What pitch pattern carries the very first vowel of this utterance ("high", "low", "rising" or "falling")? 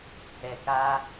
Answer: low